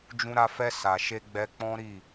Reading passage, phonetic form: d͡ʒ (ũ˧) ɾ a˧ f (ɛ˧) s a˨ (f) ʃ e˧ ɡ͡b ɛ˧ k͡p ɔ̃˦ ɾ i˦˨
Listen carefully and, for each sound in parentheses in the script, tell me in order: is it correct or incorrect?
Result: correct, correct, incorrect: none

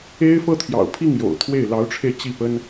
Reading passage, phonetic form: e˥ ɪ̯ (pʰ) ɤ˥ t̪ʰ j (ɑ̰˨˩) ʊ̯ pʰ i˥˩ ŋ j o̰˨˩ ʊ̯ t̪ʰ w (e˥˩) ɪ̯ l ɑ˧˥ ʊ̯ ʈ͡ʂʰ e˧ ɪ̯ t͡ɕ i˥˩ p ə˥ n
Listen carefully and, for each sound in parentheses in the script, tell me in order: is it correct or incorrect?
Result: incorrect: f, correct, correct

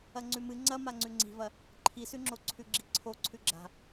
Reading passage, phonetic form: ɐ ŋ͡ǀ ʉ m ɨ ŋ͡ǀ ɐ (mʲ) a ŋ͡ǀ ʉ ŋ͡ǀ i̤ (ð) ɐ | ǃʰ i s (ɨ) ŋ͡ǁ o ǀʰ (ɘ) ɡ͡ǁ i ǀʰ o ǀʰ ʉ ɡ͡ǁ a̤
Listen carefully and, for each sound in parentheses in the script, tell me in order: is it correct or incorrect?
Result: incorrect: m, incorrect: v, incorrect: ʉ, incorrect: ʉ

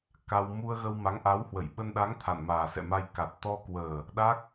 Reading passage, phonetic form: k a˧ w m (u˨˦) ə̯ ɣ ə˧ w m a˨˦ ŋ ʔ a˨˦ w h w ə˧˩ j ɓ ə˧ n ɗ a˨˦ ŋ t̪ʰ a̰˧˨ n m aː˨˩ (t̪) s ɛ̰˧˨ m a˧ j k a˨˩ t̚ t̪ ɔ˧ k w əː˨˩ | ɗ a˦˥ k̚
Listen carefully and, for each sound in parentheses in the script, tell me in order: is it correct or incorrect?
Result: incorrect: u˧, incorrect: none

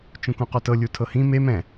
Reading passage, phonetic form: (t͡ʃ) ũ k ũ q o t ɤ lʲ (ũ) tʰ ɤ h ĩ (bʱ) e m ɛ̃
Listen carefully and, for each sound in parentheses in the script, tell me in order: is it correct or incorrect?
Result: correct, incorrect: u, incorrect: m

